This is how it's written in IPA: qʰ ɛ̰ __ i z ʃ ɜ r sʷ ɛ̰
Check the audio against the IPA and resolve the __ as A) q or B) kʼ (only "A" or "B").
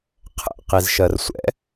A